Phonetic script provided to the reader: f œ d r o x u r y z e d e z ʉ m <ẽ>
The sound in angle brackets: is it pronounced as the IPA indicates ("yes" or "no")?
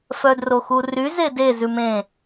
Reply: yes